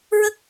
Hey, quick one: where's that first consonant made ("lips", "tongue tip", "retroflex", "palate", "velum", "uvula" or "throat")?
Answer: tongue tip